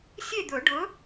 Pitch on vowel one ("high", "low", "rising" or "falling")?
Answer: falling